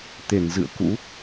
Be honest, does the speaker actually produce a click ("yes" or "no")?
no